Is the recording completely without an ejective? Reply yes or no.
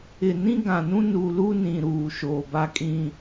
no